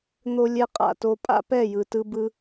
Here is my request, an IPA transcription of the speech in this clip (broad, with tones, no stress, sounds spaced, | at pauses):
n̪ o˧ lʲ ɛ˧ qʼ a̰˨ t o˧ pʼ a̰˦ p ɛ˦˨ j ɯ˨ t ɯ˧ b ɯ˧